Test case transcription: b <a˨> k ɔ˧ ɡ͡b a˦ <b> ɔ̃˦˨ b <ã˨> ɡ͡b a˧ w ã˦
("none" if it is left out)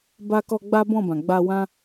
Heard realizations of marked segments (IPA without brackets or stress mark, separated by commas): a˧, b, ã˨